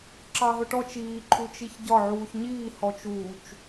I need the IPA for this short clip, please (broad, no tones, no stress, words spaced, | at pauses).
ǁɑɦʊʈɔt͡ʃ iː ǃʰut͡ʃiçɟɒ ʕuːçɲiː hɔt͡ʃuːt͡ʃ